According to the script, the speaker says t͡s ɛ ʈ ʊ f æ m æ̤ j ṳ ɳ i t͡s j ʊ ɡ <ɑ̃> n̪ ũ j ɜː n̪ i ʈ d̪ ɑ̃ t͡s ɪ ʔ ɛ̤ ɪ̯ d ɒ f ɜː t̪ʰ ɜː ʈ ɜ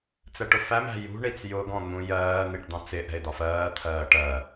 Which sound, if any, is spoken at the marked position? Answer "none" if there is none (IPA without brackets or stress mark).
ɔ̃